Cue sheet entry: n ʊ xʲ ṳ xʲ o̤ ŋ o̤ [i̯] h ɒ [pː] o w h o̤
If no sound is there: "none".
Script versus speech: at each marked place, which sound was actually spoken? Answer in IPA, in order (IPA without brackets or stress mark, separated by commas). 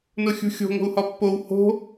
u̯, pː